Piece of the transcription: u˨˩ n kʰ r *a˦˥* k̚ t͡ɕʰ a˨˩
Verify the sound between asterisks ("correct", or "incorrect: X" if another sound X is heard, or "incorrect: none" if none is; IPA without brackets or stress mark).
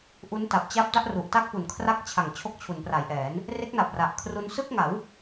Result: correct